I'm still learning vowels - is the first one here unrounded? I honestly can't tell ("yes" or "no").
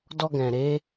no